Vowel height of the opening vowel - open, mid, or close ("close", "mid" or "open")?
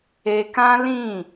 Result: mid